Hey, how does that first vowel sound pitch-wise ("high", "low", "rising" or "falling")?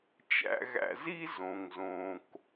high